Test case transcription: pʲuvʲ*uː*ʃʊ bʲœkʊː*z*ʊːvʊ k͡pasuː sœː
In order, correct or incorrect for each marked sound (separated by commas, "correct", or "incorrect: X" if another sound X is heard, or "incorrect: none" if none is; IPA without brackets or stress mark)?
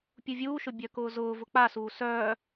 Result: correct, correct